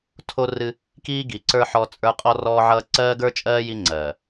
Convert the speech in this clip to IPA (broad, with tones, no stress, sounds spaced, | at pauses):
tʰ o˦ r ɨ˦ | k iː˦ ɡ i˨ ǀ ə˞˦ ħ ɔ˦ t͡sʼ ə˞˦ qʼ ɔ˦ r ɔː˦ ʕ ʌː˦ ǀ ɜː˦ ɡ ə˞˦ t͡ʃʼ ɜː˦ j i˦ ŋ͡ǀ ɜː˨